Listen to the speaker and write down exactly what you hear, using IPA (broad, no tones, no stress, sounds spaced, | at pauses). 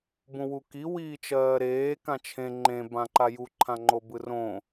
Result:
b ũ w u k i w iː t͡ʃ ɜː ɾ eː k ã t͡ʃʰ ẽ ŋ͡ǃ ẽ b ã ǃ a j u ǃʰ ã ŋ͡ǃ o b ɯ r õ